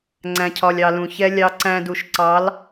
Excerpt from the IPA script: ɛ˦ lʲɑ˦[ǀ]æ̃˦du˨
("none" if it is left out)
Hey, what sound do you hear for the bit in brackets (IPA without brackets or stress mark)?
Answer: ǀ